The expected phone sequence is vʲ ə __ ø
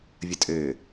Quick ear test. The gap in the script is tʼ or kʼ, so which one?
tʼ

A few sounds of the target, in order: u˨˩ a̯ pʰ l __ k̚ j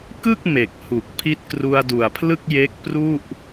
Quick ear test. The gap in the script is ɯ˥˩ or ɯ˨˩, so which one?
ɯ˥˩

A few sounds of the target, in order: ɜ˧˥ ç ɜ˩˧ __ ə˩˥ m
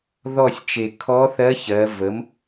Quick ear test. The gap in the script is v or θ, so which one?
v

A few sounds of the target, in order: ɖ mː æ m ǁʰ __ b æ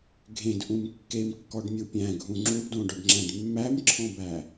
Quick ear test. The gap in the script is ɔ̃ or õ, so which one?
ɔ̃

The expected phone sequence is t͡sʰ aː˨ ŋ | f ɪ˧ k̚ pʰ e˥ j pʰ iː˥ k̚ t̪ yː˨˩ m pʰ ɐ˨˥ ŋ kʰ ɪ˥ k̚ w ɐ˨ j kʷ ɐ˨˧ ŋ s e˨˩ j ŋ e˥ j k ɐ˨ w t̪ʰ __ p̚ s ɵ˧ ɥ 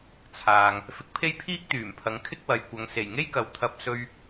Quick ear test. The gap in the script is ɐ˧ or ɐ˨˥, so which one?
ɐ˧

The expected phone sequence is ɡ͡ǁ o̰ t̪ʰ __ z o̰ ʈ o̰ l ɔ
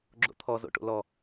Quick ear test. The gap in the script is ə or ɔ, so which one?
ɔ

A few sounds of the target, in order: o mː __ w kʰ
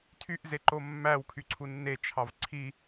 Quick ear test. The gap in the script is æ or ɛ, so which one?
æ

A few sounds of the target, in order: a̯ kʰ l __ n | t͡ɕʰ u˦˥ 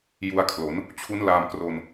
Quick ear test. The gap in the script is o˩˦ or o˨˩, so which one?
o˩˦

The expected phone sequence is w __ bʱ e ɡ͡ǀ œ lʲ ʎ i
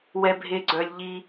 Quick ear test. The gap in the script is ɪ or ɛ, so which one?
ɛ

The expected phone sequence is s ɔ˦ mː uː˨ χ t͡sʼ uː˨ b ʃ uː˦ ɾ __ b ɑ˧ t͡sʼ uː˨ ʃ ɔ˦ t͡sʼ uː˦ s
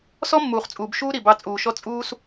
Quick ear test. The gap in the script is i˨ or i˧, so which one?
i˨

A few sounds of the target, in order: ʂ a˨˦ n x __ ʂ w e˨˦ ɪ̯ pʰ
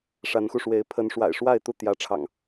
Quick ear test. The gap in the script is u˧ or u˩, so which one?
u˧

